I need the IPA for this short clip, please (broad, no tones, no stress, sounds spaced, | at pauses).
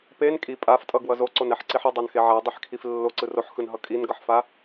p e n kʼ i pʼ a f tʼ ʌ ɡ w ʌ z o ǀ o n ɛ ħ ǀ i ħ ʌ dˤ a n x e ʕ a dˤ i ħ kʰ i f lː o ǀ ɯ r o ħ x ɯ n ɦ ʌ kʼ i n ɡ ʌ ħ f a